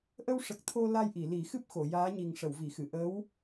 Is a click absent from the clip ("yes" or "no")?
yes